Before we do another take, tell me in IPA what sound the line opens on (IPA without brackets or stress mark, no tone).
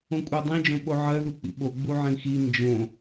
õ